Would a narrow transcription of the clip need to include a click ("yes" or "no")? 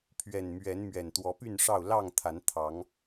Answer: no